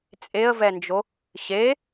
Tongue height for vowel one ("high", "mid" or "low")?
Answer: mid